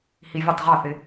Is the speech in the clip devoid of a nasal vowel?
yes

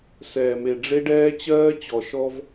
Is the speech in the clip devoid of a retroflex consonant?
no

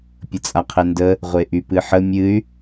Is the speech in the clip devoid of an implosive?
yes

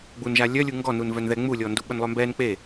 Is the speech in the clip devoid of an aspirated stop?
yes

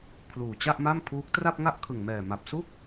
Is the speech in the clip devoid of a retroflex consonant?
yes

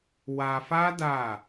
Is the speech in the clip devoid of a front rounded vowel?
yes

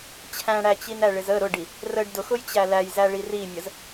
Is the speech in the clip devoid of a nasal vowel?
no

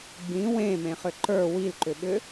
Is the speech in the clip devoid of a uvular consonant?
no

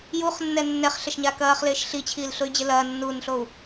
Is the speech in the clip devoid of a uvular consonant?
no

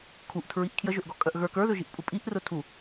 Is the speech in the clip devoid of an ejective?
no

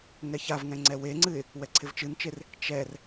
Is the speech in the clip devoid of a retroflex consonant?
yes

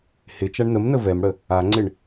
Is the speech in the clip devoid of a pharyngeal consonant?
yes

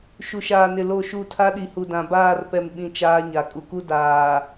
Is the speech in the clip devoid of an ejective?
no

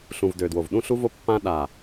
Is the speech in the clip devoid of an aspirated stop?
yes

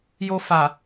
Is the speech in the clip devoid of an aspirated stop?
yes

